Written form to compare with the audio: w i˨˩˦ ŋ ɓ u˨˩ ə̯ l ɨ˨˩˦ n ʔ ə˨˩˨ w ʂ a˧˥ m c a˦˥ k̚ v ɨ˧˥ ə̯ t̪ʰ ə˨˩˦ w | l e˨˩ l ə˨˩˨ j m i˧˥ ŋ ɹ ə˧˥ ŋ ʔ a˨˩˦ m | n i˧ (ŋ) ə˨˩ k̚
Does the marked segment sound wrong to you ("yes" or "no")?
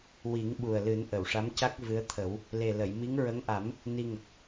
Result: no